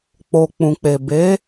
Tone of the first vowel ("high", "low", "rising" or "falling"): low